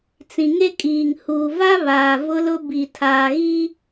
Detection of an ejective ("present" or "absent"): present